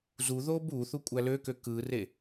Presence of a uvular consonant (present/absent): absent